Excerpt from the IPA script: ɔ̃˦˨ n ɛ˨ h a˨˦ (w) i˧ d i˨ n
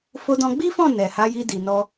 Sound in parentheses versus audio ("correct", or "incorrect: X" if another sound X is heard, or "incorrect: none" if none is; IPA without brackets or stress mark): incorrect: j